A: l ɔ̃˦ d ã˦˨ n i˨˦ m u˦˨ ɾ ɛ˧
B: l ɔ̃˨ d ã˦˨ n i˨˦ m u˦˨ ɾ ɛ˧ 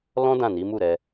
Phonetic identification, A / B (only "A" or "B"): A